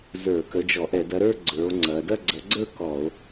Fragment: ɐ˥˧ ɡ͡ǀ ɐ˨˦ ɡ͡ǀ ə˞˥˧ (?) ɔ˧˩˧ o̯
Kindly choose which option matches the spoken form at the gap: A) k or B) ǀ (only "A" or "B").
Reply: A